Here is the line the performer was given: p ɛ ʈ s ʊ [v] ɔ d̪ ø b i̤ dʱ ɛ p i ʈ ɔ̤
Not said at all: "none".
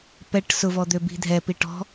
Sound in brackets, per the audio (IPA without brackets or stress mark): v